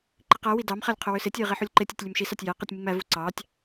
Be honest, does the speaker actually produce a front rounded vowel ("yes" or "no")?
yes